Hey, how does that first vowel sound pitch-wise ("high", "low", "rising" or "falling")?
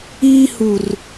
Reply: high